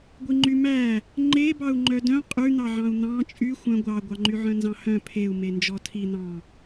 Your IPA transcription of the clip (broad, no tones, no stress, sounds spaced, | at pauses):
ɡʷ i ŋ͡ǃ y m æ | ŋ͡ǃ e b ɑ u̯ ŋ͡ǃ œ d œ̃ qʼ ʉ n̪ ɑ ʕ ɑ̃ u̯ n̪ ɑ̃ t͡ʃʼ y xʷ œ̃ ɡʷ ɑ ɡʷ ɑ ŋ͡ǃ y ʕ œ̃ n z ɑ̃ h œ̃ pʰ e u̯ m e n d͡ʒ ɔ tʰ i n̪ ɑ̃